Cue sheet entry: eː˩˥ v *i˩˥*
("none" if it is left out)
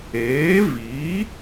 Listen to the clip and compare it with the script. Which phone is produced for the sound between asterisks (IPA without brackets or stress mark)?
i˩˥